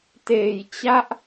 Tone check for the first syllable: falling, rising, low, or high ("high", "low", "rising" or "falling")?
low